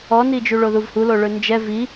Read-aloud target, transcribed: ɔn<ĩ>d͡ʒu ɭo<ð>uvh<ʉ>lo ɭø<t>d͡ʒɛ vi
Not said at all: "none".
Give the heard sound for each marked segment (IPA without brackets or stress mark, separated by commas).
i, ð, u, n